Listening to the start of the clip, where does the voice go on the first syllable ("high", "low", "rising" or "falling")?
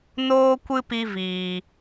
high